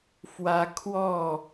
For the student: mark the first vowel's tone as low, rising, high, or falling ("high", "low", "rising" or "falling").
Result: high